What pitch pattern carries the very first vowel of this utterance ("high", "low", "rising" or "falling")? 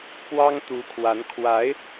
high